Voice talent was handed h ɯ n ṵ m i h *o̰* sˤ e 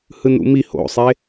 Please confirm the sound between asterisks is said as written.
yes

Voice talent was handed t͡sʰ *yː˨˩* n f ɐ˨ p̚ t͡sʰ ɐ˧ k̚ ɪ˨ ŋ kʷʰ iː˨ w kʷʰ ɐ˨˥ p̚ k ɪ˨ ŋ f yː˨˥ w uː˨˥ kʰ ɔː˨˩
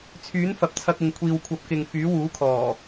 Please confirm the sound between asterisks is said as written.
no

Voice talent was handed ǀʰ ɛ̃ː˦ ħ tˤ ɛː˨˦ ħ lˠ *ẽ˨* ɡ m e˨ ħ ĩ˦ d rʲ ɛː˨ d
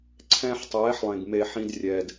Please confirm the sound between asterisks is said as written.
yes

